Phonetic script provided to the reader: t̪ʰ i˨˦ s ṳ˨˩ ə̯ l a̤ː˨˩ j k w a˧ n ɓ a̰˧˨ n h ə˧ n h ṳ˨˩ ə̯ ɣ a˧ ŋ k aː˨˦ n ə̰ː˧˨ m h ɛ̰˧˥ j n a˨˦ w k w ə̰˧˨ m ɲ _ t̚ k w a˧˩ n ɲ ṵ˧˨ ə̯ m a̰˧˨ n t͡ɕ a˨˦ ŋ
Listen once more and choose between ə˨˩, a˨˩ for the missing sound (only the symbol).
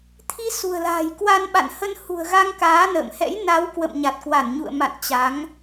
a˨˩